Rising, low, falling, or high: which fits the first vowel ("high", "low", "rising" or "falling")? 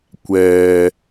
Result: low